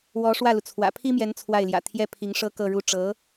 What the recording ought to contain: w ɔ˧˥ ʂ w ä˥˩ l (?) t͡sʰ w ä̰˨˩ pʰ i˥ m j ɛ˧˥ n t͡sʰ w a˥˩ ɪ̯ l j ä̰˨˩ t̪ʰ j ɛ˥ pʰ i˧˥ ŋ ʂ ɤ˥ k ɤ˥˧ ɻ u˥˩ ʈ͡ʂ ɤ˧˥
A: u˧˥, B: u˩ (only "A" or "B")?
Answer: B